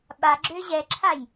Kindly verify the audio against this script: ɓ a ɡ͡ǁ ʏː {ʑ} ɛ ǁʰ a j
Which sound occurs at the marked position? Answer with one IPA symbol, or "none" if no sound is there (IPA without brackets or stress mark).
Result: ʑ